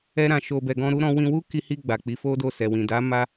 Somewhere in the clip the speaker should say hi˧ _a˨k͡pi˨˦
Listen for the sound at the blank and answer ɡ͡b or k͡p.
ɡ͡b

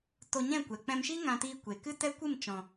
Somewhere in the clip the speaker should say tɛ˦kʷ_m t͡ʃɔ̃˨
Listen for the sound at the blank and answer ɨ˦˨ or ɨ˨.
ɨ˦˨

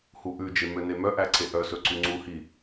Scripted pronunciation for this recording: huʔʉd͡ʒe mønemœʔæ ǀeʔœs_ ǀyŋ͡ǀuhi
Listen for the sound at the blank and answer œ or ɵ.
ɵ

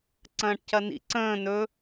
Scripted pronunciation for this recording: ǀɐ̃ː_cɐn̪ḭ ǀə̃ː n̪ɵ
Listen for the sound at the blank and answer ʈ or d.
ʈ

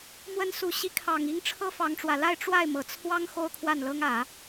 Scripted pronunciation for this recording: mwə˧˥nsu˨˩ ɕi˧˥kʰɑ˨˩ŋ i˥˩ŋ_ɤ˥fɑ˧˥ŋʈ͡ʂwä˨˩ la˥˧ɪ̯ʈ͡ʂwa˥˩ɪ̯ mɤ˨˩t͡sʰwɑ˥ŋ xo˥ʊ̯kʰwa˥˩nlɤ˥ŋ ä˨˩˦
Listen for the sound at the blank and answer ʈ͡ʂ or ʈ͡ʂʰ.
ʈ͡ʂʰ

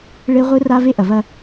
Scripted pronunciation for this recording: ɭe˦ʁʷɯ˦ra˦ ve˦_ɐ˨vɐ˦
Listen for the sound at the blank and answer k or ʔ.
ʔ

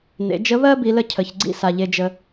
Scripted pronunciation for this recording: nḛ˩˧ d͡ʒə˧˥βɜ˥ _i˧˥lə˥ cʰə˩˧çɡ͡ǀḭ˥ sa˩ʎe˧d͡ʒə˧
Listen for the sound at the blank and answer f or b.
b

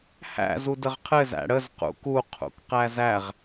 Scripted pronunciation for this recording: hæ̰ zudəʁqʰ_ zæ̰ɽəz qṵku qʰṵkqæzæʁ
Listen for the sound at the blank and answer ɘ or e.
ɘ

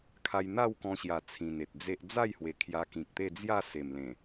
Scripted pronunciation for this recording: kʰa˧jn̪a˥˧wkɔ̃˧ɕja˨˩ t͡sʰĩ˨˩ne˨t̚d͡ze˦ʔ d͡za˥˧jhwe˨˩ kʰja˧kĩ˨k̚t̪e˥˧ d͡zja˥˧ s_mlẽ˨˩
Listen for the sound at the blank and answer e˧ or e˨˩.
e˨˩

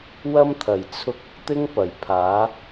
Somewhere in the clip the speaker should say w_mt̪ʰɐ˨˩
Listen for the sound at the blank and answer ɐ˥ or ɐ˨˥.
ɐ˥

